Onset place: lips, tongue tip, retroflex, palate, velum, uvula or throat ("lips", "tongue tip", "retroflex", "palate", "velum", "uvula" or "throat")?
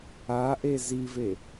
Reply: throat